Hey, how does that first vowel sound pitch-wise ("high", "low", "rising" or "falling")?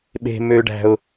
high